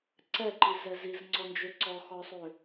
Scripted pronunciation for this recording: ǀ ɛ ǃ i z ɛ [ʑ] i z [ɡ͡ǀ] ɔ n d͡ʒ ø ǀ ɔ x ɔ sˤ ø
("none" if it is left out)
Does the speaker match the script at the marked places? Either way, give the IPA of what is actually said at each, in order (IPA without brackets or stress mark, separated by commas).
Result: z, ŋ͡ǀ